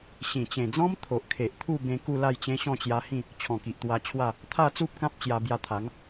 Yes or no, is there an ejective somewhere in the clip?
no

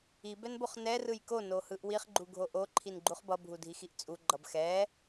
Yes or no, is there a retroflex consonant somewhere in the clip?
no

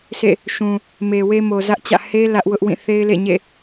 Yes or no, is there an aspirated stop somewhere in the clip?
no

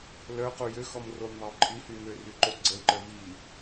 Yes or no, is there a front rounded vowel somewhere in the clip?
yes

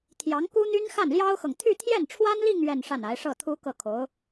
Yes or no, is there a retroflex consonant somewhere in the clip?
yes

